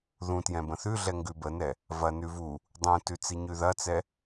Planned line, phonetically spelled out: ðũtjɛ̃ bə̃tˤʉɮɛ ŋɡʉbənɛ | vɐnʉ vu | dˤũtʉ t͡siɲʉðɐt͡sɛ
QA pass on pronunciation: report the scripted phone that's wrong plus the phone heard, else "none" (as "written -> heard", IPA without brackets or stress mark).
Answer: tˤ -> θ